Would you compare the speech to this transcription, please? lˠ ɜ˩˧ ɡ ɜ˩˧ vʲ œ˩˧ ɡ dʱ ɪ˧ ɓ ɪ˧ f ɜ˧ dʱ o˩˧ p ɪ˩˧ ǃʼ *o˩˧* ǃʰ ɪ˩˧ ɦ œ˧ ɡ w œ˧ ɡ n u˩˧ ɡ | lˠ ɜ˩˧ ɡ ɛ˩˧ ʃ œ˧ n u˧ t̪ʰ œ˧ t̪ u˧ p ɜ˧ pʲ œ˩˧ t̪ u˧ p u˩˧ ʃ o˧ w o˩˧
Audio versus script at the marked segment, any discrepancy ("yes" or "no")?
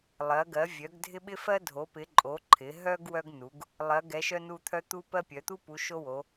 no